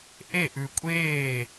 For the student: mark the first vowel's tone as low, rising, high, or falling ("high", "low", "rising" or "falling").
falling